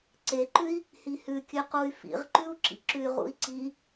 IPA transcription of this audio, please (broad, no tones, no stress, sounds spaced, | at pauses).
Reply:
ǀ e ǃ ʉ i̯ | h i h ʉ kʲ ʉ q u y̯ f ḭ ʁ ǃ ʉ u̯ ǁ ḭ ǁ ʉ y̯ ʁ ṵ i̯ ǀ i